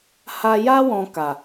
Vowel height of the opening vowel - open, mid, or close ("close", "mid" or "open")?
open